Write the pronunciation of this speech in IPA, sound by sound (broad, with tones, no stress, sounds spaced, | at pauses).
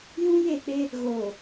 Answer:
j ũ˦ j e˦˨ k͡p e˦ | ɣ oː˨